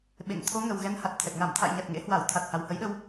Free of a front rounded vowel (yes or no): yes